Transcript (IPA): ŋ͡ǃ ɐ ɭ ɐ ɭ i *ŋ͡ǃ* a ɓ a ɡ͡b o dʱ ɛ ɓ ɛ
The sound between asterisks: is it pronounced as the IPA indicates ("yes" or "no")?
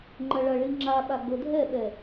no